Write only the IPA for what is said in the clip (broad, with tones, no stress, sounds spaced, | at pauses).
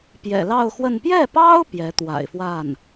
p j ɛ̰˨˩ l ɑ˥˧ ʊ̯ x w ə˥˧ n p j ɛ˥˩ p ɑ˥ ʊ̯ p j ɛ˧˥ t̪ w a̰˨˩ ɪ̯ f w a˥˩ n